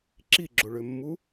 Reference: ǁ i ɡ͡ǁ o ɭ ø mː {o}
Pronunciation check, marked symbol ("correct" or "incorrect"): incorrect